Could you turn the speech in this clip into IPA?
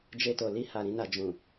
d͡ʒ e˧ t o˨ l i˧ h a˨ ɾ ĩ˧ n a˨ d͡ʒ ũ˨

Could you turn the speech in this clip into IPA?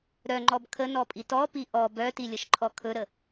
ɾ œ ŋ͡ǃ ɔ b kʰ ə n ɔ pʼ i t ɔ p i ʔ ɔ b œ t i lʲ ə ʃ ǃʰ ɔ kʰ ɵ ɾ ə

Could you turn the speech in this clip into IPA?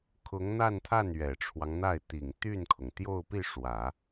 kʰ ʊ˧˥ ŋ n̪ a˥˧ n t̪ʰ a˥˩ n ɥ ɛ˨˩ ʈ͡ʂʰ w ɑ˦ ŋ n̪ a˥˩ ɪ̯ t̪ i˨˩ ŋ t̪ y˥˩ n kʰ ʊ˩ ŋ t̪ j o˥˧ ʊ̯ p i˥˩ ʂ w ä˨˩˦

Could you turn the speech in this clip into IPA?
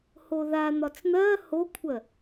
h o ð a n̪ ɒ t͡s n̪ ɜ h o kʷʰ ɜ

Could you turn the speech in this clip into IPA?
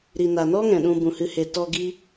ɾ i˨ n a˨ n ɔ˦ ŋ ɛ̃˨ ɗ ũ˧ b ũ˨ h ɨ˧ h e˨ t ɔ˧ ɡ i˦

